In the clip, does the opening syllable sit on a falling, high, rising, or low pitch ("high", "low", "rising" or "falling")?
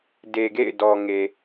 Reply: low